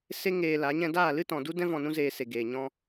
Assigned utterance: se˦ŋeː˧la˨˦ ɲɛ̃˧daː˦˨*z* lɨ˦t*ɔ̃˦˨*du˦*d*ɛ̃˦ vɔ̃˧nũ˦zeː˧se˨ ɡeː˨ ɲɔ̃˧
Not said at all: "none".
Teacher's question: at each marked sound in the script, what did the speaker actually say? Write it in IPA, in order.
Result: none, ɔ̃˨, d

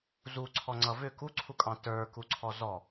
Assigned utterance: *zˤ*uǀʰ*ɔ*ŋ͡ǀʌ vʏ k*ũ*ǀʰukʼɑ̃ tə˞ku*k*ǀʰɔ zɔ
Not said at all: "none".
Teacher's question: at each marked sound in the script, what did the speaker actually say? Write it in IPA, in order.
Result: z, ɔ, u, none

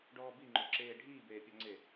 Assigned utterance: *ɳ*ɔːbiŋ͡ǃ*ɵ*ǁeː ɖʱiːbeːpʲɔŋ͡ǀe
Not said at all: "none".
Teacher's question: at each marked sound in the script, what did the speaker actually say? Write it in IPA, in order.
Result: ɖ, o

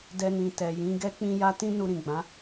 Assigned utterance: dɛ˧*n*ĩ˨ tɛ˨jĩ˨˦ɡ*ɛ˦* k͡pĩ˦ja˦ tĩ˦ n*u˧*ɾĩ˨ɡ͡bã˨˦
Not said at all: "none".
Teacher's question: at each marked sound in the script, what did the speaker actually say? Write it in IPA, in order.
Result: n, ɛ˦, u˧

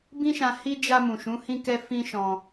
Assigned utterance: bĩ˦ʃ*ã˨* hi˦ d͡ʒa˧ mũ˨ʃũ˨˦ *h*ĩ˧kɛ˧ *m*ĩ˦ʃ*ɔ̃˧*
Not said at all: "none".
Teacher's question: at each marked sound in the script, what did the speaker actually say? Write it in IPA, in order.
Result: ã˧, h, f, ɔ̃˧

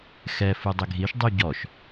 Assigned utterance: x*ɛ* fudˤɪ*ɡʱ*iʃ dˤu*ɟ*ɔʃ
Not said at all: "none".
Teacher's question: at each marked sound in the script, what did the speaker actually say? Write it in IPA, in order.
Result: ɛ, ɡʱ, ɟ

